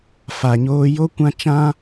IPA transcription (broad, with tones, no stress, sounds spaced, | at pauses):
f a˨ ɲ oː˧ j o˧ kʷ ã˧ t͡ʃ ã˦